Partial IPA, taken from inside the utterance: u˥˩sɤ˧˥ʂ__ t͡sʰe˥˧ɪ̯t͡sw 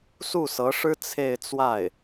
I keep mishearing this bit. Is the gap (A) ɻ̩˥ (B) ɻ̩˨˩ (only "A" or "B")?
A